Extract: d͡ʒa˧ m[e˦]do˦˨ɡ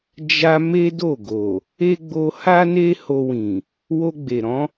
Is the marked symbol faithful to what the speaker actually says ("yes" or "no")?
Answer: yes